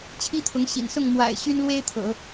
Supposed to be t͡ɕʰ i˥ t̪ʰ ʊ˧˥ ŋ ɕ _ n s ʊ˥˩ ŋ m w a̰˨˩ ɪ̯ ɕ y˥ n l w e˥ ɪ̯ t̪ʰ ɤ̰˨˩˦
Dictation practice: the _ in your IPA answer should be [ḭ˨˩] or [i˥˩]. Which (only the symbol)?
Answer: ḭ˨˩